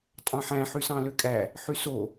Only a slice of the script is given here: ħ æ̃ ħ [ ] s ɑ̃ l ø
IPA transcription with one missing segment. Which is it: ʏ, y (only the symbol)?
y